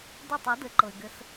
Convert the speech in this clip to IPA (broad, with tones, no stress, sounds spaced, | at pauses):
d e˦˨ tˤ ɛ˩˥ d ɘ˩˥ ǃ ɤ˩ ɪ̯ ɡ ɘ˨˩˦ s